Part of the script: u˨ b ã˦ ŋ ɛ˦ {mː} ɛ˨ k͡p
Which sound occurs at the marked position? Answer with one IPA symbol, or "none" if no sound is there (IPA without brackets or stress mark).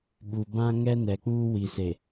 n